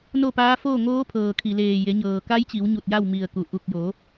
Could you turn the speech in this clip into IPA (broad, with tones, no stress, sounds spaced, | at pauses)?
n o˥˨ p aː˧˥ f oː˥˨ ŋ oː˧˥ pʰ ɤː˩ kʰ i˩ l eː˧˩ j e˩˧ ɲ ɤː˩ k a˧˥ j t͡ɕ i˩˧ w ɲ u˧˩ t̚ j a˥˨ w m i˧˩ ə̯ k u˩ ʔ u˧˩ k̚ j o˩˧